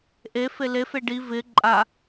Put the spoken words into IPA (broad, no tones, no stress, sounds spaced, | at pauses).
ʔ e f e l e f e ɖ i v ɪ ǃʼ a